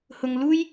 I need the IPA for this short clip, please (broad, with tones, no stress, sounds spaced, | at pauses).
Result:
h ʊ˨ ŋ l uː˥ j